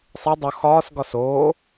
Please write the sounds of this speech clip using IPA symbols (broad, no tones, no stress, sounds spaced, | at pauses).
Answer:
sˤ e dˤ o x ɒː s ɡ ɒ s oː